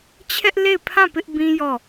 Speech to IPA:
t͡ɕʰ ɛ˦ ʔ l e˦˨ ɪ̯ pʰ ã˦˨ p ɪ˦ ʔ b ĩ˦ j ɔ˦˨

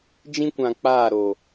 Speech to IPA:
d͡ʒ ĩ˦ kʷ ã˨ k͡p aː˦˨ ɾ o˨

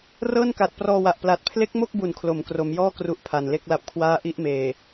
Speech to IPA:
r ɤː˥˩ n k a˨˩ t̚ p r ɔː˧ w a˨˩ ʔ p l a˨˩ t̚ pʰ l e˦˥ k̚ m o˥˩ k̚ b u˨˩ n kʰ l o˩˦ m k r o˩˦ m j ɔː˥˩ k r u˦˥ ʔ pʰ a˨˩ n l e˥˩ k̚ l a˦˥ p̚ kʰ w aː˥˩ ʔ i˥˩ ʔ m eː˨˩

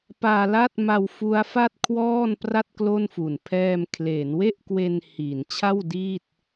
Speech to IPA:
p aː˧ l a˥˩ t̚ m a˧ w f u˦˥ a̯ f a˥˩ t̚ kʰ w ɔː˥˩ n p r a˥˩ t̚ k l o˥˩ n f u˨˩ n pʰ ɛː˧ m kʰ l eː˩˦ n w e˥˩ ʔ k w e˧ n h i˩˦ n t͡ɕʰ a˥˩ w d iː˥˩ t̚

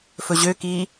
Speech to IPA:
f ɵ ʑ ø k iː

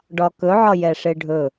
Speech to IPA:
ɖ ɒ k ɵ ʕ ɒ j ɛ ʂ e ɖʱ ɵ

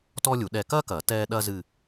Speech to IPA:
t ɔː˥ lʲ u˨˩˦ ɗ ɛ˦˨ k ɐː˥ k ɐː˨˩˦ t ɛː˥ ɗ ɐ˥ z ɨ˦˨

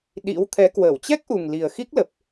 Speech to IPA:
ɗ ḭ˧˥ w t̪ʰ ɛ˨˦ k w əː˧˩ w t͡ɕ ɛ˦˥ k̚ ʔ u˨˩ ŋ l i˨˩ ə̯ x i˦˥ k̚ l ə˨˩ p̚

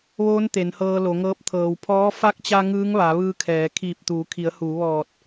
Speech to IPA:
ʋ oː˧˥ n t̪ e˩˧ n h ɤː˧ l o˩˧ ŋ ɤː˧˥ p̚ t̪ʰ ɤː˩ w pʰ ɔː˧˥ f a˧˥ k̚ t͡ɕ a˧ ŋ ɯː˧˥ ŋ ʋ a˩˧ ʋ ɯː˧ kʰ ɛː˩˧ kʰ iː˧˩ p̚ t̪ uː˩˧ kʰ i˩˧ ə̯ h uː˩˧ ʋ ɔː˧˩ t̚

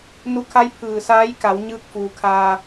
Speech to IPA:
n u˧ kʰ a˧˥ j pʰ ɯː˩ s aː˧˥ j k a˩˧ w ɲ ɯː˧ k̚ f uː˩˧ kʰ aː˧

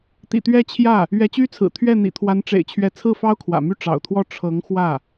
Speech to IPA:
t̪ ḭ˨˩ t̪ ɥ ɛ˥˧ t͡ɕʰ j ä˥˩ | ɥ ɛ˧˥ t͡ɕ y˥ t͡sʰ ɹ̩˨˩ t̪ʰ ɥ ɛ˥˩ n̪ ḭ˨˩ t̪ʰ w a˧˥ n ʈ͡ʂ ḛ˨˩ ɪ̯ t͡ɕʰ ɥ ɛ˧˥ t͡sʰ ɹ̩˥˩ f ɑ˥ ʊ̯ kʰ w ä̰˨˩ m y˥˩ ʈ͡ʂ ɑ̰˨˩ ʊ̯ t̪ʰ w ɔ˥˩ ʈ͡ʂʰ ɤ˧˥ ŋ x w ä˥˩

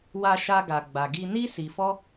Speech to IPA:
w a˦ ʃ a˦ ɡ a˧ ɡ͡b a˧ ɡ i˧ n i˦ s i˧ f ɔ˦

